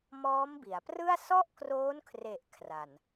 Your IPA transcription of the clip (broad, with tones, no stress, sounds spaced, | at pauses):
m ɔː˦˥ m b i˩˦ a̯ p r ɯ˥˩ a̯ s ɔ˥˩ ʔ k r oː˦˥ n kʰ r e˨˩ ʔ kʰ r a˨˩ n